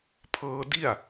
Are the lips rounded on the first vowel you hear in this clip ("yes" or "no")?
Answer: no